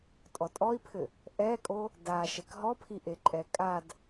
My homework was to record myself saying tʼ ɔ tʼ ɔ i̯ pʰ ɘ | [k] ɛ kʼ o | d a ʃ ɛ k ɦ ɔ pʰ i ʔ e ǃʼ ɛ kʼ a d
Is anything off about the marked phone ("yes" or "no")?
yes